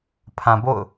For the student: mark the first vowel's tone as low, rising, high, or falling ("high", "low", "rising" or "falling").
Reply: low